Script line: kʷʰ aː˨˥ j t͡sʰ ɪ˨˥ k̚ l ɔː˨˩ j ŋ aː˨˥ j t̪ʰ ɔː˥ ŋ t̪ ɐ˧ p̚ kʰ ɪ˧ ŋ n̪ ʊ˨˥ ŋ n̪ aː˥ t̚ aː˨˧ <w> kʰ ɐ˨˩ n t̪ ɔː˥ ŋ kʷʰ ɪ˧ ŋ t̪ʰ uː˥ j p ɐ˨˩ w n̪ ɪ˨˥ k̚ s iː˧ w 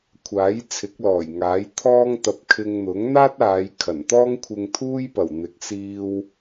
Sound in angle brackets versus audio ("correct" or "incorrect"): incorrect